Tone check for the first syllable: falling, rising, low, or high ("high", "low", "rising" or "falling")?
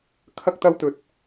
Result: high